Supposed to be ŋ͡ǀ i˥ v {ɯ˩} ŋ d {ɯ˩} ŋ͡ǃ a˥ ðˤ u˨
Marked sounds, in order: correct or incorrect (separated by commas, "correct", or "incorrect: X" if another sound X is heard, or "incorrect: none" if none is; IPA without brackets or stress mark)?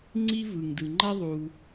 correct, correct